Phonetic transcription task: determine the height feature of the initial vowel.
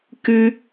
high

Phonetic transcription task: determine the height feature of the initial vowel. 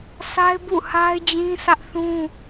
low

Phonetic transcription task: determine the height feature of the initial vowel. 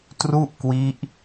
high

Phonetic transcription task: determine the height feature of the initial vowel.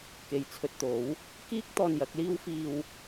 mid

